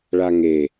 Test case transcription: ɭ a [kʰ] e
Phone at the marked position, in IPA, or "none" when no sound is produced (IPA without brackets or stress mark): ŋ